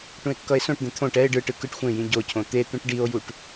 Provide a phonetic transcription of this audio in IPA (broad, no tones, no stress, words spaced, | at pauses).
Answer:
ʈũe̯kːʌe̯sõʈd̪ẽ t̪ʰõʈ ɛe̯ ɖɯʈɯ kɯʈxʷẽjĩ ɟocʰõ t̪et̪ũʈ ɖio̯juʈ